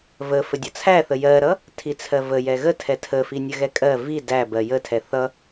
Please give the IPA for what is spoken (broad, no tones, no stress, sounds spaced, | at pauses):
v ə f ə dʲ ʌ t͡sʰ æ θ ə j ɜ ɾ ʌ | tʰ i t͡sʰ ɜ v ə j ɛ ɣ ə tʰ ɛ tʰ ə f i nʲ ə ɣ ɛ kʼ ɜ v i d æ b ɜ j ə tʰ ɛ θ ʌ